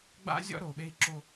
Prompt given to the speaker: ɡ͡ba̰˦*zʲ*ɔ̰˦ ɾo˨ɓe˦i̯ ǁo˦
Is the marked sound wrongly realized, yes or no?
no